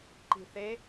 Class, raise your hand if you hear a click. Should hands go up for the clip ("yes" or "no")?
yes